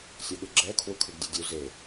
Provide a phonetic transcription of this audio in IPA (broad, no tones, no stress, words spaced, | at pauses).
sʲɔɠɯɡ͡ǁɛ kʰwukʰɯɡdʲɯdʲu ze